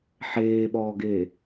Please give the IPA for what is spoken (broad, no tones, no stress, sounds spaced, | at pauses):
ħ eː ɓ ɔː ɡ e